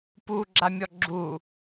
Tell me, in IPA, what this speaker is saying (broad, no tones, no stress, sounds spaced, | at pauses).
p u ɡ͡ǁ a mʲ ɔ ɡ͡ǁ u